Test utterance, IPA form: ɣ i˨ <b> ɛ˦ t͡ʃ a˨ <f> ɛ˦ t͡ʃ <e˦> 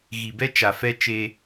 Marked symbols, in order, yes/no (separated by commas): yes, yes, yes